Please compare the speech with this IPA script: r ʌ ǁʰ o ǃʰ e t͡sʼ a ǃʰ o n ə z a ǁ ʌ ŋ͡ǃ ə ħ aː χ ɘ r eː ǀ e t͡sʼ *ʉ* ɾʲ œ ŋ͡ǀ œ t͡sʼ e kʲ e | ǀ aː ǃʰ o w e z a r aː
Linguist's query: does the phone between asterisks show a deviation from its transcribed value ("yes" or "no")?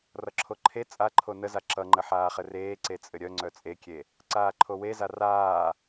yes